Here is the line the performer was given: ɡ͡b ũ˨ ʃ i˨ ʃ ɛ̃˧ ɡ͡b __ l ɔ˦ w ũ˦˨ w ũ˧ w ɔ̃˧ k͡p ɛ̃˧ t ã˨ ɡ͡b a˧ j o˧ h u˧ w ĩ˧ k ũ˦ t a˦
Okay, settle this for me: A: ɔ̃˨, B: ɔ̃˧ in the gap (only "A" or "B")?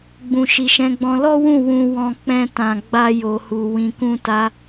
B